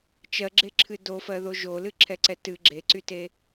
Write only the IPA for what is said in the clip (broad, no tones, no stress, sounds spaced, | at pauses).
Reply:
t͡ʃ ɜ ɡ͡ǁ e ǁʰ ɨ d o f ɜ ð o ʒ o l ɨ ǁʰ ɛ ǀ ɛ t ɨ ɡ͡ǁ e ǀ y t e